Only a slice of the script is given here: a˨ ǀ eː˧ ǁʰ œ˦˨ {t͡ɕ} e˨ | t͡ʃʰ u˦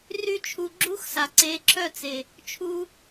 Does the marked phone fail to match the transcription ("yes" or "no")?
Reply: yes